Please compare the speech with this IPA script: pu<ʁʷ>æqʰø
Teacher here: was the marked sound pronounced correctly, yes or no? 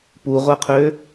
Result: yes